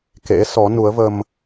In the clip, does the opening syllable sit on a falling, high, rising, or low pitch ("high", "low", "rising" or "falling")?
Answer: rising